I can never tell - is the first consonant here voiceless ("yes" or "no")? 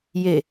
no